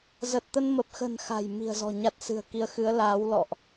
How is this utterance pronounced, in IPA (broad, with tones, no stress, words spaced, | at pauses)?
zə˨˩t̚t̪ə˧nmə˨˩p̚xə̤˨˩n xa̤˨˩j mi̤˨˩ə̯zɔ̤˨˩ ɲa˦˥t̚sɨ̤˨˩ə̯ki˧ə̯ xɨ˨˦ə̯laː˨˦w lɔ̰˧˨ʔ